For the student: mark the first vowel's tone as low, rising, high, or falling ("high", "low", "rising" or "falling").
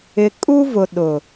low